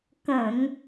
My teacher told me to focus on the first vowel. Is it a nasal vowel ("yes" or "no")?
yes